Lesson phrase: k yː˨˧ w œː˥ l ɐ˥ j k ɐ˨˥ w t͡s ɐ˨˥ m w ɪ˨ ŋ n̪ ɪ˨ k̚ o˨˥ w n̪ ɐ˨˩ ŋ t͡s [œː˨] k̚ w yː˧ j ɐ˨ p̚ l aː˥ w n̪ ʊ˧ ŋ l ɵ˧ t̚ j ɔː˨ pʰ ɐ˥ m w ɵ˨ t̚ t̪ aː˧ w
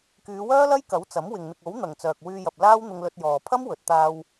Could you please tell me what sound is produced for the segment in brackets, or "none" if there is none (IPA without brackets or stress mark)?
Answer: œː˨